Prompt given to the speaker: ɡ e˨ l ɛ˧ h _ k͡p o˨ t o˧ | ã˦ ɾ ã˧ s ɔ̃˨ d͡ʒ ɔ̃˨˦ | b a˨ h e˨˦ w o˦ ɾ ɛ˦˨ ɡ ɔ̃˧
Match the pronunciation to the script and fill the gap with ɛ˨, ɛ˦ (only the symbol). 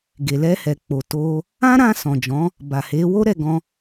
ɛ˨